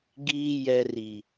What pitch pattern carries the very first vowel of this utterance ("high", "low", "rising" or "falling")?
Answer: low